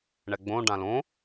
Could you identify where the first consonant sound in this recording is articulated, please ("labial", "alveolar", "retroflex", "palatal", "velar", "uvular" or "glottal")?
retroflex